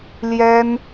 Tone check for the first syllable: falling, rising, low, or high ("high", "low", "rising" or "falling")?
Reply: high